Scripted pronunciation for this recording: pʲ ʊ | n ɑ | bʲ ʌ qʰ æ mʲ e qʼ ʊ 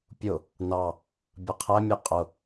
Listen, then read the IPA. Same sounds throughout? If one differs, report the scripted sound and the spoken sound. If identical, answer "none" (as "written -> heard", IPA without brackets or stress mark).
e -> ɛ